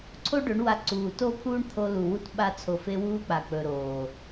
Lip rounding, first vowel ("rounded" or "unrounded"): rounded